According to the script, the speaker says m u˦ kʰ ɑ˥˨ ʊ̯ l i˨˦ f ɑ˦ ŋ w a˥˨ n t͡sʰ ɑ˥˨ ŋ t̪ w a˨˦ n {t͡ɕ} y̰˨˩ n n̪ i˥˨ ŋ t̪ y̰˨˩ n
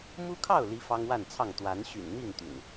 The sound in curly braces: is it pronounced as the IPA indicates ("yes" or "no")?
no